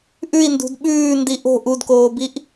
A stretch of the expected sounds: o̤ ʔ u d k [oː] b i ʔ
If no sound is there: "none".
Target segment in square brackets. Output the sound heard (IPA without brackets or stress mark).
oː